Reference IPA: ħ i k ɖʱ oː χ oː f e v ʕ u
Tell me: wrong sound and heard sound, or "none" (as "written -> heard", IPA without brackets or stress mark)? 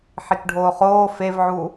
none